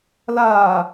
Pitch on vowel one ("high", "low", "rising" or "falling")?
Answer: low